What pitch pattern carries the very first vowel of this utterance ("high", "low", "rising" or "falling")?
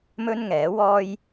high